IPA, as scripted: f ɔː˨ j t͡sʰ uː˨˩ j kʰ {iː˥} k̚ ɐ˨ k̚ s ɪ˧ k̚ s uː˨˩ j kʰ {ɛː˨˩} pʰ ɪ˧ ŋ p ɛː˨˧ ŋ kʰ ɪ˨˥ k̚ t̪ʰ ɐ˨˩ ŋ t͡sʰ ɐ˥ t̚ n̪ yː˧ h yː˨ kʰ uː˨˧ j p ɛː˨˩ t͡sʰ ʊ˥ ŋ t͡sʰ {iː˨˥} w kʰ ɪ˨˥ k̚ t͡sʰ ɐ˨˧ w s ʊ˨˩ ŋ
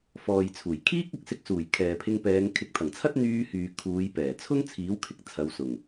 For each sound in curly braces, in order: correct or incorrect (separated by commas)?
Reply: correct, incorrect, correct